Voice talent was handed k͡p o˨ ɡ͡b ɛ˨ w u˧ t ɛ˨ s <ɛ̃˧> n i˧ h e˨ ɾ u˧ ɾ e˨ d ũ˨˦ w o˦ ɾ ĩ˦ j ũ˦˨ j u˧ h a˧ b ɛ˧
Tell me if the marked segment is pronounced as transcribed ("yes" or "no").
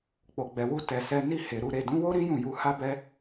no